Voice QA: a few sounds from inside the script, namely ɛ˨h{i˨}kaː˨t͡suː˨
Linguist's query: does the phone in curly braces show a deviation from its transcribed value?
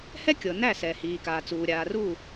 yes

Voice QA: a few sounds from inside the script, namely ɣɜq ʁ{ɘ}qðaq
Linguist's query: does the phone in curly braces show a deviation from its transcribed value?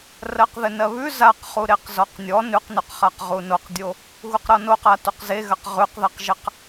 yes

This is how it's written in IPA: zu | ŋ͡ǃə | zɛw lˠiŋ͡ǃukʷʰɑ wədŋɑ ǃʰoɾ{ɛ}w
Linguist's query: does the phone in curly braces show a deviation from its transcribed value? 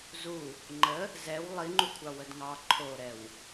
no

